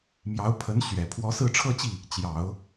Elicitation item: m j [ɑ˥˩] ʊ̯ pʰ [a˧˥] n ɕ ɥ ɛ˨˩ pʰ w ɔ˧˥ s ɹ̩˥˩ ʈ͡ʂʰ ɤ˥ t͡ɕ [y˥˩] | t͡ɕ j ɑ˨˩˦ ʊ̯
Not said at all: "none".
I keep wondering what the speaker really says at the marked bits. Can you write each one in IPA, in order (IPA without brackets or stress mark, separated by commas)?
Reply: ɑ˧˥, ə˧˥, i˥˩